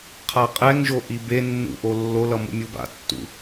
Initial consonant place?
uvular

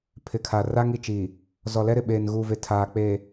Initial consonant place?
labial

